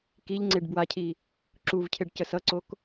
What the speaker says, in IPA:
k i ʎ ŋ͡ǀ e ɖ b w a cʰ i | ǁ u v cʰ e ɖ c ə s ʌ ǀ o k

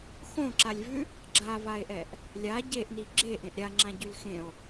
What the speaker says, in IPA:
x õ ǁ a lʲ v ʉ | ɡ͡ǁ a v a e̯ ʔ ɛ ʔ | lʲ a ɟ e ʔ n i ɡ͡ǁ e ʔ ẽ ʔ ɾʲ a ŋ͡ǁ ã ɟ ʉ l x ẽ o̯

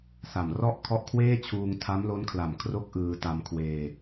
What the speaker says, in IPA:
s a˨˩ m r ɔ˥˩ ʔ kʰ ɔ˦˥ ʔ kʰ w eː˥˩ t͡ɕʰ uː˧ ŋ tʰ a˦˥ m l o˦˥ n kʰ l a˨˩ m kʰ r o˥˩ k̚ ʔ ɯː˧ t a˧ m kʰ w eː˧

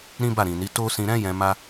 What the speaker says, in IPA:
ɾ ĩ˦ b a˦˨ ɾ ĩ˨ n i˨˦ t o˦ s ĩ˧ ɾ ɛ̃˦ j ɛ̃˧ m a˦

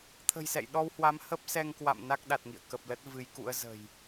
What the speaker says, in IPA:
t̪ʰ ə̤˨˩ j s ɛ̰˧˨ j ɗ ɔ˧ w h w a˨˦ m h ə˦˥ p̚ s ɛ˧ ŋ k w a̰˧˨ m n a˦˥ k̚ ɗ a˨˩ t̚ ŋ ḭ˧˨ ə̯ k ə˨˩ p̚ l ə˦˥ t̚ v ɨ˨˦ j k ṵ˧˥ ə̯ z ə̤˨˩ j

